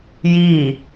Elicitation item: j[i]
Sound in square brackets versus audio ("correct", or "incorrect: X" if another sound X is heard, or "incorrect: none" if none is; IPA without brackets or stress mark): correct